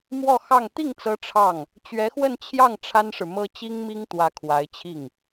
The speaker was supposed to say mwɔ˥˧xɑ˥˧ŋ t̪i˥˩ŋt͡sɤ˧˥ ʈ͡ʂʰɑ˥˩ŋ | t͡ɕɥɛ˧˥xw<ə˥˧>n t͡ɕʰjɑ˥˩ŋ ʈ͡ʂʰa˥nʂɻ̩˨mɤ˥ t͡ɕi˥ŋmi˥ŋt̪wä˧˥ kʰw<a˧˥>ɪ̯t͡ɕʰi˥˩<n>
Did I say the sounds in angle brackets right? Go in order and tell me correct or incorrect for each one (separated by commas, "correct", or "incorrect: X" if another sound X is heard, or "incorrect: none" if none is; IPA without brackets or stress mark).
correct, correct, incorrect: ŋ